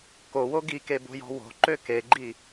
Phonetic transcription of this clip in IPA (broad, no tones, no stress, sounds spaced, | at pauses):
k o w o ɡ i k e b o̤ j ɔ̤ w o̤ ǃ ø k e ɡ͡ǃ i